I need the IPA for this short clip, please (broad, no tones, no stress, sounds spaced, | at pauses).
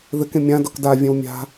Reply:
ð ɘ k ẽ mʲ ã d ɔ k d a vʲ ɛ̃ w mʲ a̤